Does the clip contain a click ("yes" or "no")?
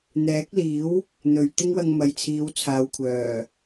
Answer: no